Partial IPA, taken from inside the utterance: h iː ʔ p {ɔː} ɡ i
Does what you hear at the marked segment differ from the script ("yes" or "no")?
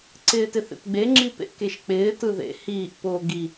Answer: yes